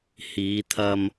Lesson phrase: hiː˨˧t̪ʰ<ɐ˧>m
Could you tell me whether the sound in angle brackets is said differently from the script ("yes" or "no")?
no